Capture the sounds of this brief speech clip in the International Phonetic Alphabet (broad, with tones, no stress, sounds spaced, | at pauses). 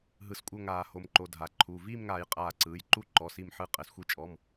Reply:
ɦ ɯ˧˩˧ s kʷʼ ɤ˥˨ ŋ aː˧˩˧ h o˩˧ m ǃ o˩˧˩ dʱ a˩˧ ǃʰ u˩˧˩ v iː˥˨ m ŋ aː˧˩˧ j qʼ aː˧˩ ǀ ɯː˩˧˩ j ǃ u˥˨ ǃ ɔ˩˧˩ s i˧˩ m ħ ɯ˧˩ qʼ ɛ˩˧ s xʷ i˧˩ t͡ʃʼ ɔ˩˧˩ m